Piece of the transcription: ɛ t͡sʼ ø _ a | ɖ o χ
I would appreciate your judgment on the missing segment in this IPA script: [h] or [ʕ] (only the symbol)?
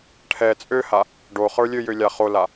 h